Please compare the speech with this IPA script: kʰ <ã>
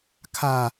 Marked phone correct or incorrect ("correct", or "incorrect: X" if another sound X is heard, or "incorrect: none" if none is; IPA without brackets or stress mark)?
incorrect: a